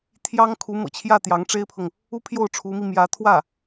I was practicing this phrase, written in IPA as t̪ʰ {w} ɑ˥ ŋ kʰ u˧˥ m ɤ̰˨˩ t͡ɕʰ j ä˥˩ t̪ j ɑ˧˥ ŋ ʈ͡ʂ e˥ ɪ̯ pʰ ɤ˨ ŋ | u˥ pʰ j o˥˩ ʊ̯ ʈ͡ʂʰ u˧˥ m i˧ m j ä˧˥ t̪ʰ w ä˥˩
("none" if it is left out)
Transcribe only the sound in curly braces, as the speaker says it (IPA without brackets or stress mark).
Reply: j